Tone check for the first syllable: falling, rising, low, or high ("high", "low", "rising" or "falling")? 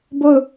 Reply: falling